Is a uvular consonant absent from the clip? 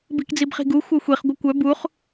no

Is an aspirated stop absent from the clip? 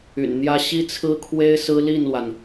no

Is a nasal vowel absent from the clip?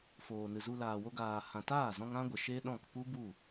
no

